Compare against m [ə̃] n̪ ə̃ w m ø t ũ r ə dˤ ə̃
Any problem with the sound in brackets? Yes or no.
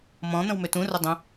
yes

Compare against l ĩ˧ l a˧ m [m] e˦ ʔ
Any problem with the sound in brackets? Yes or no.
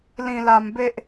yes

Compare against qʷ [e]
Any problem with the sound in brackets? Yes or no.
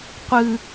yes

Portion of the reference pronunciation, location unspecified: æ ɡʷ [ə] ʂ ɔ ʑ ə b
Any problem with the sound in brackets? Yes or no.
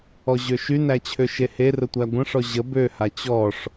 yes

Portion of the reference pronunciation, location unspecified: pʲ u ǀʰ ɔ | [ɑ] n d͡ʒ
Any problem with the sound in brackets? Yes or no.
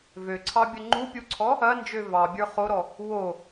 yes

